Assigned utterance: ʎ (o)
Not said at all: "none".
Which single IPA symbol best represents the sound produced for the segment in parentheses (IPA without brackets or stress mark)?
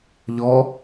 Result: ɔ